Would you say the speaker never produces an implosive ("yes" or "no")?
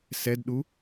no